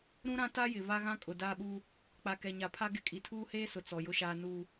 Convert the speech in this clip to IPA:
ɾũ˦ɾã˦ ta˦jɪ˨ va˦ɣã˦ kʼʊ˨ daː˦ɓuː˦ | k͡pa˨kɛ˨ɲa˨pʰa˦ ɡɪ˦ kʼi˨tʰuː˦heː˦sʊ˨ t͡sɔ˨ jʊ˦ʃaː˦ nuː˦

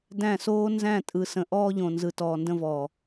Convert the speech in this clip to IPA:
dæ̃˦˨soː˦ nzæ̃˦˨tʼɯ˨sə̃˨ ʔɔː˦ʎõ˨nzɯ˨ tɔː˨ndə̃˦vɔː˨

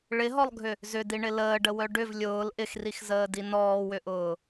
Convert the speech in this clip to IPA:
ɭɪɦɔlˠɡʱʏ | zʏdiɳɪ ləːɖəwœ ɖʏv lʲʊːl ʔɪxrixzəːdi nɔːwʏʔʊː

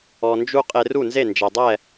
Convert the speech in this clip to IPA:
ɔ˧nd͡ʒu˥ qʼe˧ru˥˩nze˥˩ nd͡ʒɛ˩dˤɛ˥˩

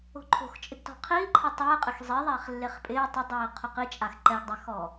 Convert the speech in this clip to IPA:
o̤ǃʰo̤xt͡ʃʼɪɡ tɔ̤qʰiː ǃʰetˤɛː qʼɪxzˤi ðˤɛːχlːeχpʼɪː tˤʊdˤiː qʰʊqit͡ʃʼax ǃɛɡdˤɛxɔː

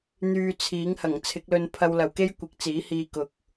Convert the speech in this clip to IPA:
n̪yː˨ t͡sʰiː˨˥ŋ hɐ˨˩ŋt͡sʰɪ˨˥k̚lɵ˧n pʰɐ˧wlɐ˨wke˥j kʷɪ˨˥k̚t͡siː˨˥hiː˧ kʊ˨k̚

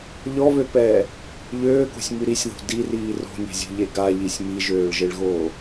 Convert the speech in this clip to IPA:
ʎɔβøpɛː | ʎøːko̤sʲmy ɾisʲðo̤ diriː ro̤nʲɛ̤zʲo̤ʎe ɡaʎisʲ miʒøːɭʒeɭɣoː

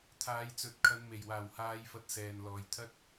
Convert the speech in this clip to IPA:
t̪ʰaː˨˧jt͡sɵ˨˥t̚kʰɐ˨˧n me˨˩jwaː˨˩whaː˨˧jfɐ˨˥t̚ sɛː˨nlɔː˨jt̪ʰɐ˥t̚

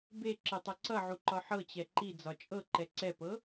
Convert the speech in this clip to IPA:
beǁə tˤʌǀʌʕu ǃɒħɤt͡ɕɛ ǃi d͡zɒt͡ʃʼɤǃɛ ǀɛpɤ

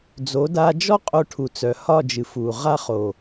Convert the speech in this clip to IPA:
d͡zo˨˦da˧d͡ʒɔ˦qʼo˧ ʈʰu˨t͡sœ˨hɒ˦˨d͡ʒɨ˨ fu˨ ʁa˧χo˨

